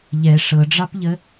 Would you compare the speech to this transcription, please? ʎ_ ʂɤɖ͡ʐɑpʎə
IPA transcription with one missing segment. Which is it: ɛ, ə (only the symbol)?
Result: ɛ